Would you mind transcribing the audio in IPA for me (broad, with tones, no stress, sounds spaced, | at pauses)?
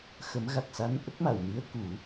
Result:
x ə˨˩˦ m ɣ a˨˩ k̚ s a˧˥ n ʔ ə˦˥ k̚ m a˨˩˨ w n i˧˥ ə̯ k u˨˩˦